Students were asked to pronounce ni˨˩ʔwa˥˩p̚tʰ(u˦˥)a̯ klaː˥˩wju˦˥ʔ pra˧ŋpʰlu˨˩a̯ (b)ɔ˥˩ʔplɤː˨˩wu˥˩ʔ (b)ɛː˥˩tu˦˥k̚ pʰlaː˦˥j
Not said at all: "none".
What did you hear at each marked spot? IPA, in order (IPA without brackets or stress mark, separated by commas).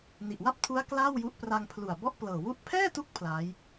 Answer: u˦˥, b, pʰ